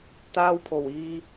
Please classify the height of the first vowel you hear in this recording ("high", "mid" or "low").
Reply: low